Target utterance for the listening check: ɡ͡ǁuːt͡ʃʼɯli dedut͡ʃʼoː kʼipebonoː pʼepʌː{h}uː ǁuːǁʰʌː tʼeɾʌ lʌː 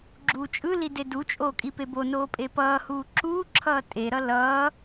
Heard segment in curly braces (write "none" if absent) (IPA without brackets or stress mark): h